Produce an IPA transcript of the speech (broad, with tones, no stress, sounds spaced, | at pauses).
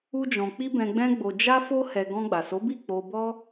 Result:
u˦ d͡ʒ ɔ̃˧ k͡p i˦ b ɛ̃˧ ɡ͡b ɛ̃˦ ɡ͡b o˧ d͡ʒ a˦ f o˦ h ɛ˧ ɡ ɔ̃˧ ɡ͡b a˨ s o˨˦ b i˦˨ k͡p o˧ b ɔ˦